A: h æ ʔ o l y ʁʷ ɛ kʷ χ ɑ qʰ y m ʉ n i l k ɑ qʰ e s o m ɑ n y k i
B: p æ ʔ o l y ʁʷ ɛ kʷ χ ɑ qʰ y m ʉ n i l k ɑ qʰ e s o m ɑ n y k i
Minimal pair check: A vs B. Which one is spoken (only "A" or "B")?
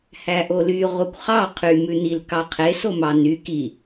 A